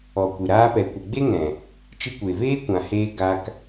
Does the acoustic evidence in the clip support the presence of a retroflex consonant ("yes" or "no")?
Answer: no